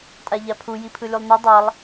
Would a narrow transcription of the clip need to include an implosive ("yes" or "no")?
no